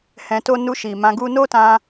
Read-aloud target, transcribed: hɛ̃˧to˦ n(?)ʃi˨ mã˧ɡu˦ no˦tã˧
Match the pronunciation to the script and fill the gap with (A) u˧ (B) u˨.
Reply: A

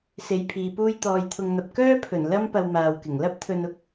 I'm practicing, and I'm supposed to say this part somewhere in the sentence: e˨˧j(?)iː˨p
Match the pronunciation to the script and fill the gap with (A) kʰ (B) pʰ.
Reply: B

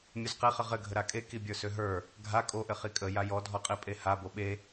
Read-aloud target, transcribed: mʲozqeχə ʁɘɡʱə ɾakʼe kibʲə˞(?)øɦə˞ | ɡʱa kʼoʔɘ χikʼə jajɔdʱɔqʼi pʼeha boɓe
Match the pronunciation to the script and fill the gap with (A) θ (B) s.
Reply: B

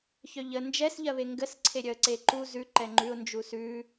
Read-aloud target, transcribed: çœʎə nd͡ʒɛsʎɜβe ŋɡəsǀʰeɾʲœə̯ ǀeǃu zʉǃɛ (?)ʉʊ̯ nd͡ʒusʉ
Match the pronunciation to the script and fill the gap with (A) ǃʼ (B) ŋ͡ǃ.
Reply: B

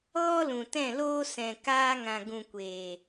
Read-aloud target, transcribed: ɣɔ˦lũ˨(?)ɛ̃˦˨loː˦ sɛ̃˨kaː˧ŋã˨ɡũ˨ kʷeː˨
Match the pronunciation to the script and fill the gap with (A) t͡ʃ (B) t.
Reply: B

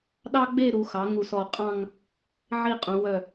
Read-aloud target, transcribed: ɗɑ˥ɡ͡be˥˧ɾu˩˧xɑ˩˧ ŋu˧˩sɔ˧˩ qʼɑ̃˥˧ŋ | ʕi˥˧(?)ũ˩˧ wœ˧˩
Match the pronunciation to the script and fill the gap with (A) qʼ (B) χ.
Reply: A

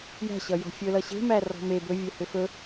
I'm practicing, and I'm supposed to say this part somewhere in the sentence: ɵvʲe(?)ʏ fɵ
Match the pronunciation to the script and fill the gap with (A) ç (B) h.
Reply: B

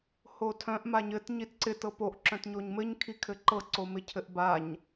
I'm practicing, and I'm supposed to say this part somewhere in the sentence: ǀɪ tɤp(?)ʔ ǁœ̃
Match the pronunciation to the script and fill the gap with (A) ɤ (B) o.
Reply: B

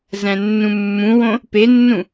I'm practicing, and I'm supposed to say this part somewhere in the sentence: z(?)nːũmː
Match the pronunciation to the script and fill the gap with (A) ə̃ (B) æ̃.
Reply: B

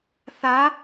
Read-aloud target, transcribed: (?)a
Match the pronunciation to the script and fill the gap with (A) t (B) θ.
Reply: B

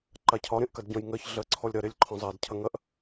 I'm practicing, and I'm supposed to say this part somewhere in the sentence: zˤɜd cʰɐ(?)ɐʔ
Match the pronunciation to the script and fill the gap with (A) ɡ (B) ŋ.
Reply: B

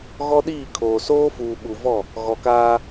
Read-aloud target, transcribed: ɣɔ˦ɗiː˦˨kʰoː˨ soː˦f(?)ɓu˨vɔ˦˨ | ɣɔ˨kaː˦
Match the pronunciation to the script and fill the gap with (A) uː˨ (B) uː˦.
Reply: A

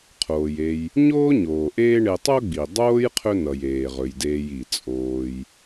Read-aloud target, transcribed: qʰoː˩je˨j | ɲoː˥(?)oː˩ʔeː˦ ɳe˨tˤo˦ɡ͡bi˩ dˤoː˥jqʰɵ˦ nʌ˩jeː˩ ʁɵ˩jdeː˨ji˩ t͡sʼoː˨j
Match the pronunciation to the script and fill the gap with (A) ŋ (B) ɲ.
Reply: B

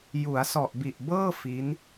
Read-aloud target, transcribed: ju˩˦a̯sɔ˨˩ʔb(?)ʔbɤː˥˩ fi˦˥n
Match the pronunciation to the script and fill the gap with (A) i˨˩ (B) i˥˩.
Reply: A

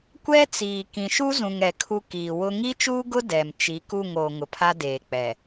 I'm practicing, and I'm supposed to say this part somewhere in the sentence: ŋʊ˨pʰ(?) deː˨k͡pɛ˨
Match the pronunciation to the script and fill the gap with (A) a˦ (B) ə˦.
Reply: A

